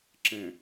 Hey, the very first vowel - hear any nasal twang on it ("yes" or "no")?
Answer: yes